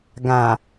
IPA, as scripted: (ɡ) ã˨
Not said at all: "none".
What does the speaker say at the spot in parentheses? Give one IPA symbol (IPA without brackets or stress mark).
ɡ